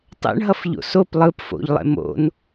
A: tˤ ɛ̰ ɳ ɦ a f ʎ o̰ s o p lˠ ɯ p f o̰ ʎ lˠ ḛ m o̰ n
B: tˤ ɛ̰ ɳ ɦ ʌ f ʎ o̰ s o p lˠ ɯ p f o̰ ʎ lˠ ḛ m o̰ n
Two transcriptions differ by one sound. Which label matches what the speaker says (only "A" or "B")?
B